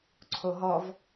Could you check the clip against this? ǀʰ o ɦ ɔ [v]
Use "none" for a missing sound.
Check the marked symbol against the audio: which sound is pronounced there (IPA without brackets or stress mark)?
v